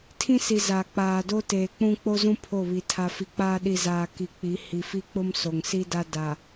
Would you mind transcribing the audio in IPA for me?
tʰ ĩ˦ s i˨ z a˨ k͡p aː˨ d o˦ t eː˨ k͡p ũ˦ k͡p o˦ z ũ˦ pʰ o˦˨ β i˨ tʰ a˨ f i˨ k͡p aː˦ ɗ i˨ z aː˨ k i˨ k͡p i˨˦ h i˨ f i˦ k͡p ʊ˦ m s o˨ ŋ s i˦ d a˦ d a˨

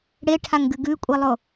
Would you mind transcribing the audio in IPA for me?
ɽ e ʈʰ a ŋ ɡ ɨ ɡ ʉ kʷʼ i lˠ o

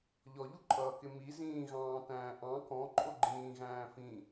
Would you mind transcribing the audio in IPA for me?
ʎ ɔ ʎ u ǃʼ ʌː k ɪ m i z ĩː ɣ ɑ̃ː t æ̃ː ʔ ɑ̃ k ɔ̃ ǃʼ ʊ ɡ͡ǃ ĩː ɣ æ̃ː f ĩ

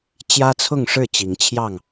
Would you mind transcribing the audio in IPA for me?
t͡ɕ j ä˦ t͡sʰ ʊ˥˨ ŋ ʂ ɻ̩˥˨ t͡ɕ i˨˦ ŋ t͡ɕʰ j ɑ˥˨ ŋ

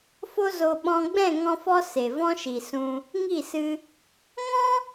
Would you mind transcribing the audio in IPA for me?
f o˦ z o˧ ɓ ɔ̃˧ ɡ͡b ɛ̃˦˨ ŋ ɔ̃˦ f ɔ˦ s e˨ v ɔ̃˦ ʃ i˨ s ũ˧ | ŋ i˦˨ s ɨ˧ | ŋ ɔ̃˦

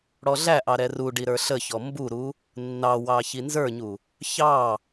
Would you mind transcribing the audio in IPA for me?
ɽ ɔ ɮ æ ʔ ɑ ɾ ɛ r u ɖ i ɾ ə˞ ɬ ə ç ɔ m b u ɾ u | nː ɑ w ɑ ç i n z ə˞ ɲ u | ç ɑ

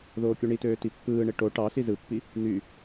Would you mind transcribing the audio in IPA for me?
ð oː kʲ u ɳ i t øː t i pː ɯː ɳ e ʈ o ʈ ɑ ɬ i z ɯ pː i | n̪ y

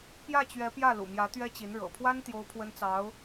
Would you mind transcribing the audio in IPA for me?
p j ä˥˩ t͡ɕ ɥ ɛ˧˥ p j ä˥˩ l ṵ˨˩ m j ä˧˥ t̪ ɥ ɛ˥ t͡ɕ i˧˥ n ɻ ɤ̰˨˩ pʰ w a˥ n t̪ j o˥ ʊ̯ pʰ w ə˥ n t͡s ɑ˧˥ ʊ̯

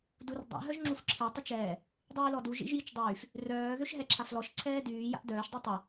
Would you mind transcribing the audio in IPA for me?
d u r dˤ a̰ ɦ œ ʒ ŋ͡ǁ u f ǁʰ e tˤ ə t͡ʃ ɛː | dˤ yː l ɔ d u ʒ ḭ ʒ j i t͡ʃ dˤ yː f | r œː ð ø ʃ ɦ ɛ ǁʰ a f l ɔ ʃ ǀʰ ɛː d yː j a̰ ʔ d œː ʃ dˤ u tˤ œ

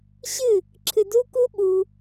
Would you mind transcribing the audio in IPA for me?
ɕ ɨ˦˨ | ǁʰ ɨ˧ d u˦ k u˦ ɓ u˧

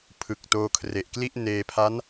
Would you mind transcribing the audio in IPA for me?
pʰ ɯ˨˩ k̚ t oː˧ kʰ r e˨˩ ʔ k l i˥˩ ʔ n eː˧ pʰ a˦˥ n

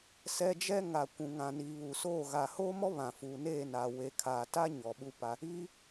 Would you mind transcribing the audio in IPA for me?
s ɛ˦ d͡ʒ ɛ˦ ŋ a˨ kʷ ũ˨ ŋ ã˨ n i˨ β u˨ s oː˦˨ ɣ a˨ h oː˦ m ɔ˦ β ã˨ f uː˨ n eː˦˨ n aː˨ w e˨ kʰ aː˨ t a˦ ɲ ɔ˨ ɓ u˦ p a˦ | iː˦

